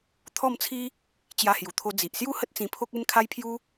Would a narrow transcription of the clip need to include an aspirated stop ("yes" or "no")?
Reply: yes